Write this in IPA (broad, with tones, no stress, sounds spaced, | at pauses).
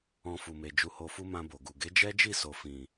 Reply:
ɔ̃˧ f u˨ m e˨ d͡ʒ u˧ h o˧ f u˦ m ã˧ b o˨ ɡ u˨ ɡ e˨˦ d͡ʒ ɛ˦ d͡ʒ i˦˨ s o˨ f ĩ˨